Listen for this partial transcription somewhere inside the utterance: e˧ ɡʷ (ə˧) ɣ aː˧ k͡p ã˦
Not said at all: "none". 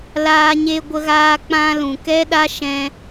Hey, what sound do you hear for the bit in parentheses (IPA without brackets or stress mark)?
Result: ə˧